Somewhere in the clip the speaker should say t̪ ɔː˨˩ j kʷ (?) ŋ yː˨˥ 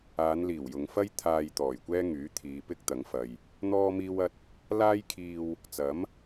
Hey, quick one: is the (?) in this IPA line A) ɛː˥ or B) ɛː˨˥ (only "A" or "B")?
A